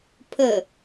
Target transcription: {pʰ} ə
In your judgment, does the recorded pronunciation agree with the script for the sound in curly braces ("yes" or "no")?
yes